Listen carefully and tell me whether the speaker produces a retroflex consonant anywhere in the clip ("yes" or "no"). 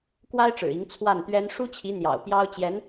yes